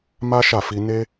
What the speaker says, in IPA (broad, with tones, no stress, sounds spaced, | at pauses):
m a˦ ʃ a˦˨ f i˧ n e˦